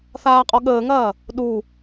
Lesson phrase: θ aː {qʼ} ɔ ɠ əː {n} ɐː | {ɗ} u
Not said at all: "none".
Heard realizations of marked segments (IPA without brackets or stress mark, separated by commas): qʼ, ŋ, ɗ